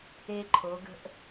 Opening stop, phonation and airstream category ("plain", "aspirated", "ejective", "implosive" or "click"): click